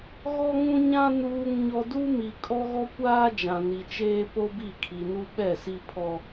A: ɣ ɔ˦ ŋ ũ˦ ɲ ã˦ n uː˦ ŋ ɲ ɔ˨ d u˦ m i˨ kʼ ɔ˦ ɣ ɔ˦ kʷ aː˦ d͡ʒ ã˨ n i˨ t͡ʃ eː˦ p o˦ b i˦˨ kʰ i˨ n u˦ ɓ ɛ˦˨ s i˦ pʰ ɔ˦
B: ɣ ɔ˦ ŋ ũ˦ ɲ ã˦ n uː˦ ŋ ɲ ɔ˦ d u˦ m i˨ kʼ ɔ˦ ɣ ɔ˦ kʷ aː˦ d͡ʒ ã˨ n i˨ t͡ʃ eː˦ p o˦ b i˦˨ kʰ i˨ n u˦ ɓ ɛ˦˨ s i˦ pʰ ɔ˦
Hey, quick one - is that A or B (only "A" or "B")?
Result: B